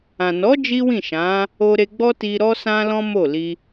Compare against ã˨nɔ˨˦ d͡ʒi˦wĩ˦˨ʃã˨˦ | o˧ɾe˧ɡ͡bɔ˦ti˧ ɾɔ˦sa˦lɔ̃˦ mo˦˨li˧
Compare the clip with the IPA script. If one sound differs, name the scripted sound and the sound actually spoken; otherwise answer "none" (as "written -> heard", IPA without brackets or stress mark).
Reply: a˦ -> ã˦